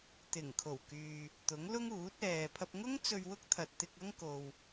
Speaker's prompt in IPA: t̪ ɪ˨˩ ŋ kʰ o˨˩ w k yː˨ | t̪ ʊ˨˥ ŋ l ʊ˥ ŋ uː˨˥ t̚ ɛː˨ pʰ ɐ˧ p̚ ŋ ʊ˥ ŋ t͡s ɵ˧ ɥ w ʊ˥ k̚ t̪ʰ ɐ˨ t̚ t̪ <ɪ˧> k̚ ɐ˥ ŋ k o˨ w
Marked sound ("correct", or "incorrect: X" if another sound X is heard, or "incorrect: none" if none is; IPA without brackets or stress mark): correct